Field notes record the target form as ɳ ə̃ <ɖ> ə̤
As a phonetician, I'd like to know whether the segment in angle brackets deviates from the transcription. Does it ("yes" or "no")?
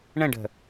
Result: no